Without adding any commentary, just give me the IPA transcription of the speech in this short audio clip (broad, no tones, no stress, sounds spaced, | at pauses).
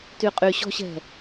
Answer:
t y qʼ y ɕ ɔ̤ ɕ ɛ̤